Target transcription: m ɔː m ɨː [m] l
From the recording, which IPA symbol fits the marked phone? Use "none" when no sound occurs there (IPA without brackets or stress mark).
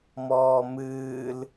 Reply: none